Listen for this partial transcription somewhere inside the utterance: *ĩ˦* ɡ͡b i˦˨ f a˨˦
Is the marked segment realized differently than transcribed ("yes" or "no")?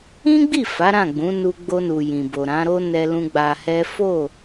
no